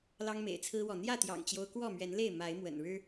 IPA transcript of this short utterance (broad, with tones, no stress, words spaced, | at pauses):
lɑ˦ŋmḛ˨˩ɪ̯t͡sʰɹ̩˦wɔ˨ n̪jä˥˨t̪jɑ̰˨˩ŋt͡ɕjo˦ʊ̯ kwɔ˥˨mɥɛ˨˦nle˥˨ɪ̯ ma˨˦ɪ̯mwə̰˨˩nɻɻ̩˦